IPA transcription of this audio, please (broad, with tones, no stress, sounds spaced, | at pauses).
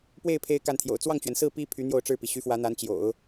p w e˥˩ ɪ̯ pʰ e˥ ɪ̯ k a˥˩ n t̪ʰ j o̰˨˩ ʊ̯ t͡s w ɑ˥˩ ŋ t͡ɕ ɥ ɛ˩ n s ɹ̩˥˩ p i˥ pʰ y˧˥ n̪ j o˥˧ ʊ̯ ʈ͡ʂ ɻ̩˥˩ p i˩ ɕ y˧˥ f w ä˧˥ n̪ a˧˥ n t͡ɕ j o̰˨˩˦ ʊ̯